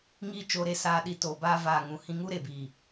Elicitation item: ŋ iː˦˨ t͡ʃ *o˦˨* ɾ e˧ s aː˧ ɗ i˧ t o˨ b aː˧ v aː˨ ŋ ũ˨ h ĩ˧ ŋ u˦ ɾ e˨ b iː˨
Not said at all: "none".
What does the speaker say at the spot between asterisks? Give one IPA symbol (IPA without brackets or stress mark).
o˧